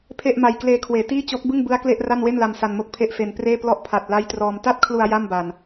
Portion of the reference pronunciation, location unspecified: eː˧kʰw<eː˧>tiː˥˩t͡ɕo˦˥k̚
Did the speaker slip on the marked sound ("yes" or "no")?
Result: yes